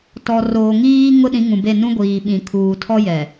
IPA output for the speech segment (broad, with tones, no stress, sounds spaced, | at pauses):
t ɔ˨ r oː˨ ŋ iː˦ ŋ ʊ˦ ɗ ĩ˨˦ ŋ ũ˨ b e˦˨ n ũ˦ ɡʷ iː˨ ɓ ĩ˨ kʰ uː˨ tʰ ɔ˦ j ɛ˨